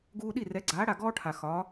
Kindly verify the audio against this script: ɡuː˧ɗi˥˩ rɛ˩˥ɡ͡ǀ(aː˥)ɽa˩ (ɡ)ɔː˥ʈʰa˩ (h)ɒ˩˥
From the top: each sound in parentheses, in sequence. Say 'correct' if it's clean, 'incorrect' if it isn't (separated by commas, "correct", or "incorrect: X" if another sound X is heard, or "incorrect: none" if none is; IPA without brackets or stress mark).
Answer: incorrect: aː˩˥, correct, incorrect: x